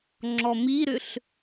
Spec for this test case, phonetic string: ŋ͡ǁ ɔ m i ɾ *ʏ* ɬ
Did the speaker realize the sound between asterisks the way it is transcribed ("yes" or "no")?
yes